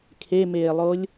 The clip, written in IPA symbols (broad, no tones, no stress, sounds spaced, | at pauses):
kʰ e m eː lˠ o lʲ